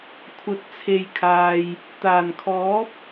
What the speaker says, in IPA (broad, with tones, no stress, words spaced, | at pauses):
kʷʰɐ˨t̚t͡sʰe˨jkʰaː˨j | t̪aː˨˩nkʰɔː˨˥p̚